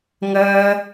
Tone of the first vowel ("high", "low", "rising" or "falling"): high